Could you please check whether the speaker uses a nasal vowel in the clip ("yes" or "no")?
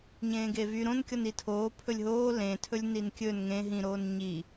yes